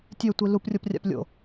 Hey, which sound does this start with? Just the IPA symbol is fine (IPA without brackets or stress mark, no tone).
tʲ